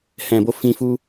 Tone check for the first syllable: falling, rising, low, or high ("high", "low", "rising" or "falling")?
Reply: low